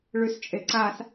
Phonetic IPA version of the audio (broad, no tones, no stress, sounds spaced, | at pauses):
ɭ ʉ s t͡ʃʼ e ǀ a s